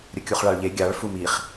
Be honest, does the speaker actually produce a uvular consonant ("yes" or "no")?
yes